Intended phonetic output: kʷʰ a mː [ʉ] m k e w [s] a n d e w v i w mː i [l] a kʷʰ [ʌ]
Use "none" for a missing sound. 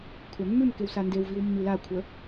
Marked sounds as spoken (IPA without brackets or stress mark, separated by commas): ʉ, s, l, ə